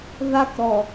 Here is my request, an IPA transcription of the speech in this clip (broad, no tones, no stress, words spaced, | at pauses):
ðakɾɔ